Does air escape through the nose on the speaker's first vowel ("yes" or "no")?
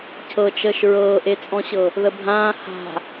no